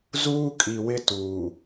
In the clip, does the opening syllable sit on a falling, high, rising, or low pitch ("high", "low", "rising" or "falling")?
high